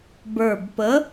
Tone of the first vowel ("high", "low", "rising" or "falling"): low